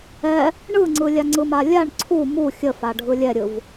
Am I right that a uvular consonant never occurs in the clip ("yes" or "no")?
yes